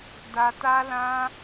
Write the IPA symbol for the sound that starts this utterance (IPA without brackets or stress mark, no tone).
d